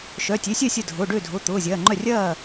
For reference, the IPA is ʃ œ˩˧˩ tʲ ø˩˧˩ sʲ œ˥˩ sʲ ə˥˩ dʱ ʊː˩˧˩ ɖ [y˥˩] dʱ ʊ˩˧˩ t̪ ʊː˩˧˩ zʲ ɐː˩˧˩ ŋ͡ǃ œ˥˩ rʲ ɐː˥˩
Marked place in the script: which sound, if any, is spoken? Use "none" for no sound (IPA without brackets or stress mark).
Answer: ø˥˩